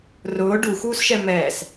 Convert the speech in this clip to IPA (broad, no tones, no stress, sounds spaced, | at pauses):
r ʊː ɖ u x uː s ʃ ɛ m ɛː s